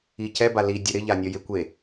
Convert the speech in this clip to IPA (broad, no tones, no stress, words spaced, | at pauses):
icɛ bali dʲʊɾɪ ʎanʲɔjɪ kʷe